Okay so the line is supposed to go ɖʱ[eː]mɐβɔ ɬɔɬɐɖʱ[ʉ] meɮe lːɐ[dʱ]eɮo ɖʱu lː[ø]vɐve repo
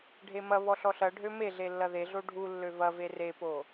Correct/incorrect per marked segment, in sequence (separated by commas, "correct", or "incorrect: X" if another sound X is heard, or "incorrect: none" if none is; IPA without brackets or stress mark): incorrect: e, incorrect: ø, incorrect: ð, correct